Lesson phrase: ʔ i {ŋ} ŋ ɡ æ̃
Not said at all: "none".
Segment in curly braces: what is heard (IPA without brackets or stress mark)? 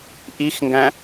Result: x